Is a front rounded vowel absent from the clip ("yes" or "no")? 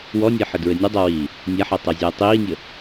yes